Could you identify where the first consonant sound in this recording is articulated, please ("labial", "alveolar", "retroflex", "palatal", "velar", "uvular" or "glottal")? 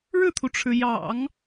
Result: retroflex